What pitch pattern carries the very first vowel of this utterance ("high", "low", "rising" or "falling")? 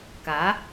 rising